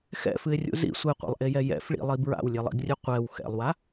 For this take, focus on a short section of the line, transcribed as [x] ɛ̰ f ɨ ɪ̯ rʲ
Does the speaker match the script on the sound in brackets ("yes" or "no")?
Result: yes